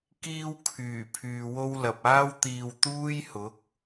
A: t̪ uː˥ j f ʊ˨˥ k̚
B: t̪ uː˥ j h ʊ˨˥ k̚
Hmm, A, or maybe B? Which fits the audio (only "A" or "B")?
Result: B